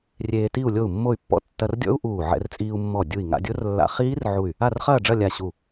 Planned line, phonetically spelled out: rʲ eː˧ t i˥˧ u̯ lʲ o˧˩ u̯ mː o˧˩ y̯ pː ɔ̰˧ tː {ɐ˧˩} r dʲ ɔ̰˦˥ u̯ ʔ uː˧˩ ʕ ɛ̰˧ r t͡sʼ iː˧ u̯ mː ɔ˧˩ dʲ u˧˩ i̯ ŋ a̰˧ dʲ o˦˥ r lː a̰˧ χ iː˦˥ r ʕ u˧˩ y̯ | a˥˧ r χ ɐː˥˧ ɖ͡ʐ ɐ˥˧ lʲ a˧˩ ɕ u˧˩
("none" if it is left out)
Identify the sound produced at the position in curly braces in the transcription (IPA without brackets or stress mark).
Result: ɐ˧